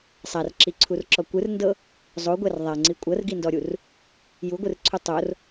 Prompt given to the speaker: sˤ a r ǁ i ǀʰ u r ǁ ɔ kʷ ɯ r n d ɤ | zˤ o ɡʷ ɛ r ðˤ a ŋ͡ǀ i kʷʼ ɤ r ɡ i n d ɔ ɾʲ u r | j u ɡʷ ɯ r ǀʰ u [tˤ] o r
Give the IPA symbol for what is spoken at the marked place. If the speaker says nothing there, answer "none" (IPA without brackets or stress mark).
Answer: tˤ